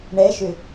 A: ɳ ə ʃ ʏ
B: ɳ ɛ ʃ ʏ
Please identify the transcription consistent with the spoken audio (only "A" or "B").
B